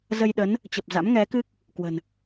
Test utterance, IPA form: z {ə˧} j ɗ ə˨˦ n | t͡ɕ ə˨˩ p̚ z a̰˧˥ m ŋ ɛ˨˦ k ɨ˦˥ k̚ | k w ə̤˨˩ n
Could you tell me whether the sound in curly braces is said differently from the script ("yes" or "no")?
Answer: no